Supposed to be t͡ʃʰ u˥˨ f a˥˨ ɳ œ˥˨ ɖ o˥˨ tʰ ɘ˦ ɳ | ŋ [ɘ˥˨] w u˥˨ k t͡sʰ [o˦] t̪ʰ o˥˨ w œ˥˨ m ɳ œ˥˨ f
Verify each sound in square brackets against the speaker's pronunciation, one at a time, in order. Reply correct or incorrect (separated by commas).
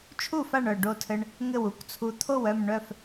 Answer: correct, incorrect